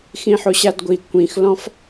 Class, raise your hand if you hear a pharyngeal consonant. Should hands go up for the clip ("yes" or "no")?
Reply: yes